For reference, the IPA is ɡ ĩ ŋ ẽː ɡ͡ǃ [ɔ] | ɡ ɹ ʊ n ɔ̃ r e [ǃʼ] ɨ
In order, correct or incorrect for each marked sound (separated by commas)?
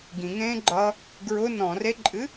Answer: incorrect, correct